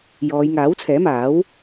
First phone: j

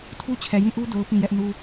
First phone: tʰ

